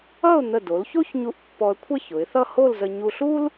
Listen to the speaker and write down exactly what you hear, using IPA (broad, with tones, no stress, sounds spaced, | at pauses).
ʌ˥˧ ʊ̯ n̪ ə˧˩ d o˩˧ l ç o˥ ç ɲ u˧ ʔ pː ɔ˧ ə̯ kʷʰ ə˥˧ ç ʊ˩˧ ɪ̯ θ ʌ˥˧ h o˥˧ l z ə˧ ɲ u˧ ɬ u˥ l